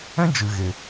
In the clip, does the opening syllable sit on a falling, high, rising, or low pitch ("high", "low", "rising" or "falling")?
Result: high